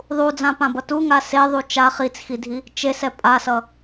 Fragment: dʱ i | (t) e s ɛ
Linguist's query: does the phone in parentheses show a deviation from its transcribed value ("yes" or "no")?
yes